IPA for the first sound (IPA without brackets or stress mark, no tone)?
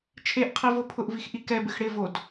t͡ʃʰ